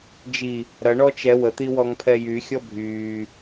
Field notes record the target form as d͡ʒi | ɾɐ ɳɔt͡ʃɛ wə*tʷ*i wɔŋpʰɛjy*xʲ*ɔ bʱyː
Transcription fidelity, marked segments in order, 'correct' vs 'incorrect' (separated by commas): incorrect, correct